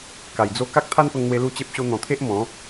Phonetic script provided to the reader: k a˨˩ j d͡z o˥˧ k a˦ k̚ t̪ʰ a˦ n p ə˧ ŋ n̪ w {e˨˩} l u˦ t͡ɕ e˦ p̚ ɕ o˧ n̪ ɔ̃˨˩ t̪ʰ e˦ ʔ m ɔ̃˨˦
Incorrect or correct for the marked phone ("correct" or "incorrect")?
incorrect